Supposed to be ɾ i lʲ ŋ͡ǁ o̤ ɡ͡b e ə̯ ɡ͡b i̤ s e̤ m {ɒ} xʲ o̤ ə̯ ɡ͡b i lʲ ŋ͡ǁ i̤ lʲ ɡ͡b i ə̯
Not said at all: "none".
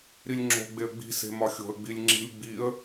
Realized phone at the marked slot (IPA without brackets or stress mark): ɒ